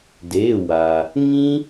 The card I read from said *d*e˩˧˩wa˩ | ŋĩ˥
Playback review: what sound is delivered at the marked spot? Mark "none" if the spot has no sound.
d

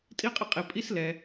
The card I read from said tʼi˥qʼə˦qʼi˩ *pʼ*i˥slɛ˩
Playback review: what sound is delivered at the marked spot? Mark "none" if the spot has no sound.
pʼ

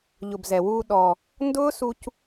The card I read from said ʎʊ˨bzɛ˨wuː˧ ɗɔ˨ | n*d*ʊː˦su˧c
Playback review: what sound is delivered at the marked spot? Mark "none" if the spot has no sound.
d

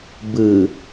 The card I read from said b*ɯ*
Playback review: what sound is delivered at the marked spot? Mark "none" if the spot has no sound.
ɯ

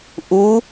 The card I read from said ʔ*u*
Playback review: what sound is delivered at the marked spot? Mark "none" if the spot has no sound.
u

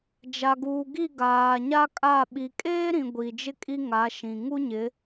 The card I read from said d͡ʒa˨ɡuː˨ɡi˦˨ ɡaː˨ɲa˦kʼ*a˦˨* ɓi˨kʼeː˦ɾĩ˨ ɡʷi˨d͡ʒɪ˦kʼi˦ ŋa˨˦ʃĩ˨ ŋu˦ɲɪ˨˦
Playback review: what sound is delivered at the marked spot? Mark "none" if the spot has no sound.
a˦˨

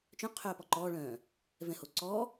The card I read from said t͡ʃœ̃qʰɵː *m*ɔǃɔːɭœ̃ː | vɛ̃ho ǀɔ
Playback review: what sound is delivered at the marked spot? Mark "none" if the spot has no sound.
p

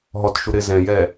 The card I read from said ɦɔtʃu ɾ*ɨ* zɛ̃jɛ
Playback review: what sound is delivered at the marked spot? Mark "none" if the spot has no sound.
ɪ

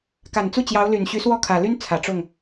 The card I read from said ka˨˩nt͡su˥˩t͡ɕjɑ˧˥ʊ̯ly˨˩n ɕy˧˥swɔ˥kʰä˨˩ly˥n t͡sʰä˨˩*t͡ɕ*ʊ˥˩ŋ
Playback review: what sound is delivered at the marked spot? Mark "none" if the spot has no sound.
ʈ͡ʂ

